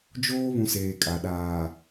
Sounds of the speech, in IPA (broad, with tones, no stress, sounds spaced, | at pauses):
d͡ʒ oː˦ β ũ˨ s eː˨ kʼ a˨ ɗ aː˨